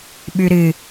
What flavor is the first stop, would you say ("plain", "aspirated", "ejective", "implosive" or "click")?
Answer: implosive